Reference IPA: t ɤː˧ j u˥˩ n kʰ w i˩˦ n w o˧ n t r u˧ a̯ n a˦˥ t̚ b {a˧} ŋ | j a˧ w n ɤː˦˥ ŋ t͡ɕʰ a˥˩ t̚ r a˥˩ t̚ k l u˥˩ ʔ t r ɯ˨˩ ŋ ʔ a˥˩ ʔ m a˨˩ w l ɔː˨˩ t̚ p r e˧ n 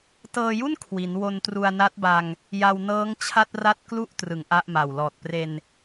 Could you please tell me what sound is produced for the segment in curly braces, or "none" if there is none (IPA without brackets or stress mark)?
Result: a˧